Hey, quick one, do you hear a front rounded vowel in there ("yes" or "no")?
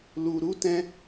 no